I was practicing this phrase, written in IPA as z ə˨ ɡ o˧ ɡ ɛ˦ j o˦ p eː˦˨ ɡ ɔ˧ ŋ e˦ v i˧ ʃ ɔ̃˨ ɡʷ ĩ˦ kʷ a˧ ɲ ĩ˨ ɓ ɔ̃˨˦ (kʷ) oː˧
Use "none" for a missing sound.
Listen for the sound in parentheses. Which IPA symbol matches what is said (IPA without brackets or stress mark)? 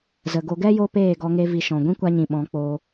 k͡p